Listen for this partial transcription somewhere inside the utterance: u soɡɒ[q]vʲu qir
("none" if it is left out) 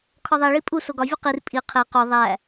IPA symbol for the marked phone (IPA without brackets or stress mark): none